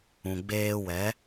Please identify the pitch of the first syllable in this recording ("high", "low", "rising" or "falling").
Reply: low